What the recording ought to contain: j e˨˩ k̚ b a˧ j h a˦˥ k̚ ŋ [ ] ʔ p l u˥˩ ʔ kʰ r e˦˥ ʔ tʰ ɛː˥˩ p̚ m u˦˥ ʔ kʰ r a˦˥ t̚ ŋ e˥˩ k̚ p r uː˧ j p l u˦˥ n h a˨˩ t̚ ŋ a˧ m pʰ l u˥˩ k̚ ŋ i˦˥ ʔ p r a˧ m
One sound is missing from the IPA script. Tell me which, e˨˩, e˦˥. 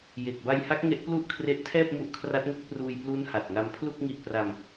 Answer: e˦˥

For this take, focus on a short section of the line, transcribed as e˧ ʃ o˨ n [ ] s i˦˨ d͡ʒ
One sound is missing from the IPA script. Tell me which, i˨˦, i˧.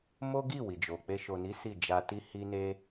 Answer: i˨˦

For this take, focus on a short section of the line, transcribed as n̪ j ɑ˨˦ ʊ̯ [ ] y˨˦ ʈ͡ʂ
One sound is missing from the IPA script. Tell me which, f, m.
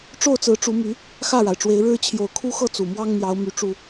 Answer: m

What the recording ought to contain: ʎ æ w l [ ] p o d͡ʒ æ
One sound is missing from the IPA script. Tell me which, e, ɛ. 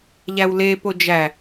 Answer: e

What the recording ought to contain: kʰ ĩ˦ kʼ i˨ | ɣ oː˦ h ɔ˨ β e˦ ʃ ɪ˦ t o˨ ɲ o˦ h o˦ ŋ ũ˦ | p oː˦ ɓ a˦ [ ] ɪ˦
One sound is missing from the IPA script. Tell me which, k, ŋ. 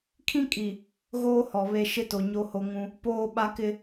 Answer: k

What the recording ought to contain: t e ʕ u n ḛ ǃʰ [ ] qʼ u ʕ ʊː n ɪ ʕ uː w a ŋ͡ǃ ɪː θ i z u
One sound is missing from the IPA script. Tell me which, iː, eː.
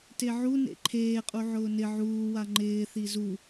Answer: eː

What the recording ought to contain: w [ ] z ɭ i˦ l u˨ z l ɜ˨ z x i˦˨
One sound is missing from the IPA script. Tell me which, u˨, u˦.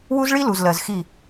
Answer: u˦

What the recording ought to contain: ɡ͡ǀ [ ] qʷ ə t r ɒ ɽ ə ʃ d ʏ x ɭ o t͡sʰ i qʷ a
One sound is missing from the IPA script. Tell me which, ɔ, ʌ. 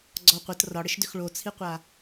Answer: ɔ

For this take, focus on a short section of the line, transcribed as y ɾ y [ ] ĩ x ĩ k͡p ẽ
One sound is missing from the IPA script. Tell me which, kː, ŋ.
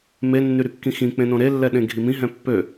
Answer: kː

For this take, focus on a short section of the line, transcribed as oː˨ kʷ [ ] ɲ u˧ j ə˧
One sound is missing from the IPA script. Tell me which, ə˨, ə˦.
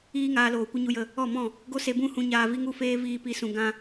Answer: ə˦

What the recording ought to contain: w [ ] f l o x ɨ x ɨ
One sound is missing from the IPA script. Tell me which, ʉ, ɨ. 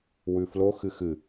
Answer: ʉ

